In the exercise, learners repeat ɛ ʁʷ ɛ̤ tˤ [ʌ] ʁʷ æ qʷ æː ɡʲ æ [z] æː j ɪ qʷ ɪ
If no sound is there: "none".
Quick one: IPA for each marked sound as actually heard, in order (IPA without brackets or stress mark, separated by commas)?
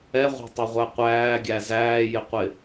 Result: ʌ, z